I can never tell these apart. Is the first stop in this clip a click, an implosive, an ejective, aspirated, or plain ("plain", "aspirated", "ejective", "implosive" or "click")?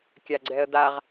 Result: plain